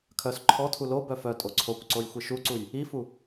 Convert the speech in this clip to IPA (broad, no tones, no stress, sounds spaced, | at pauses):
kʰ œ s ǃʰ ɔ tʰ u l o b œ f œ tʼ o ǀʰ o kʷ ǀ o j xʷ i ʃ u ǀ u j | i f u